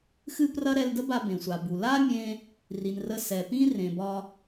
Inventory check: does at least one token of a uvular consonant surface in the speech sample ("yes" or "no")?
no